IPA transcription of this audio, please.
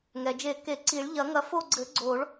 ŋ ɛ˩ d͡ʒ e˨˩˦ k e˨˩˦ ǀ i˨˩˦ ɭ ʎ ɐ˨˩˦ ŋ ɐ˨˦ f o˦˨ ɡ͡ǀ ɘ˨˩˦ ɡ͡ǀ o˨˩˦ ɭ

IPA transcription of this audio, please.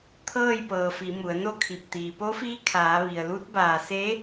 t̪ʰ ɤː˥˨ j p ɤː˩ f i˩˧ m u˩˧ ə̯ n o˥˨ kʰ i˧˩ p̚ t̪ iː˩ p o˧˥ f iː˧˥ kʰ aː˩˧ ʋ i˩ ə̯ l u˧˥ t̚ b aː˧˩ s e˧˥

